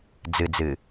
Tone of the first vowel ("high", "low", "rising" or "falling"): low